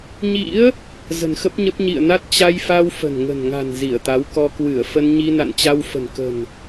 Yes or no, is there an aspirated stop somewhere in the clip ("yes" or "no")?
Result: no